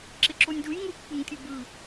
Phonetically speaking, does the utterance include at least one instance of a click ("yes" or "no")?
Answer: yes